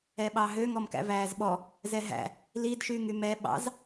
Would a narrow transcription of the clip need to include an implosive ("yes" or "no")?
yes